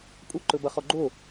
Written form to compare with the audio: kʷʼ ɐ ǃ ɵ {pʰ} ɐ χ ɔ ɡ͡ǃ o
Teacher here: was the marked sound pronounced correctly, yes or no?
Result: no